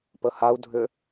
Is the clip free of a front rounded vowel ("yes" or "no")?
no